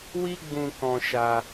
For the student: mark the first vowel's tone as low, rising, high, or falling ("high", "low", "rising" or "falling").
high